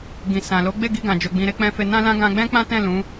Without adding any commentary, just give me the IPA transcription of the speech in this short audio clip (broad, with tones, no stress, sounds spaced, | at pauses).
ɡ ĩ˨ s ã˨ l o˨˦ ɡ͡b e˦˨ ɡ i˧ ɡ ã˨ d͡ʒ o˨ ɡ͡b ĩ˨ ɾ e˨˦ k͡p ɛ̃˧ f e˧ n ã˦ l ã˦ ɡ ã˧ ɡ͡b ɛ̃˦ k͡p ã˦ t ɛ̃˦˨ l ũ˨˦